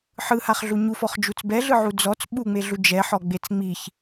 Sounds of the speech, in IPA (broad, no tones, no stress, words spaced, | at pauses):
ħɯhaχɮu ɲufɔχd͡ʒut͡s bɛɮɯʕu d͡zɔt͡s ɓuŋ͡meɮu d͡ʒɛħɔɡ͡bet͡s ŋ͡miç